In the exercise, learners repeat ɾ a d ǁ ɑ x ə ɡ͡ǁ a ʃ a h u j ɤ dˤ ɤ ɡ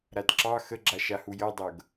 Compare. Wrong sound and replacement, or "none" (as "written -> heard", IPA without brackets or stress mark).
none